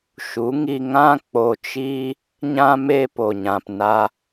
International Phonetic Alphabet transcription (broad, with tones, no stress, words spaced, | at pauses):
ʃu˨˦ŋi˧ ŋã˦ k͡po˧t͡ʃiː˦ | ɲã˦me˦po˨ ɲã˨p na˧